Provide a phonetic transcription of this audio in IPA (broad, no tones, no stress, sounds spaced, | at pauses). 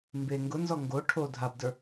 m b e ŋ ɡ ʊ n z ɔ ŋ ɡ o ʈʰ o dʱ a b d ə˞